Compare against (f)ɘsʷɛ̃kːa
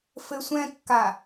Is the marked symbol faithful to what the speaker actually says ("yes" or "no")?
yes